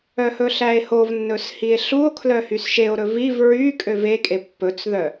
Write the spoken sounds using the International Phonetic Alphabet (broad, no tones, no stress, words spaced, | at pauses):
œhɵɬæe̯hov nːɵshie̯ɬuo̯ kʰlœhysʃeo̯ ɾɵviv ɹy kʼøvekʼe pːɵt͡sðœ